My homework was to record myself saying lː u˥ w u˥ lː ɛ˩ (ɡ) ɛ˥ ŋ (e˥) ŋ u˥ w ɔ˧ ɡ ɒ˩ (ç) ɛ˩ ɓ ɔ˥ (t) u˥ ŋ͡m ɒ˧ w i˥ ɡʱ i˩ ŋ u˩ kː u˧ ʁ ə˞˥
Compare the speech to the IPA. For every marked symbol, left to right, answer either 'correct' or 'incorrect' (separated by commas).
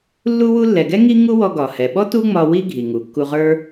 correct, incorrect, incorrect, correct